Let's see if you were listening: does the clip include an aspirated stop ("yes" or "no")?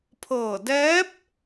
yes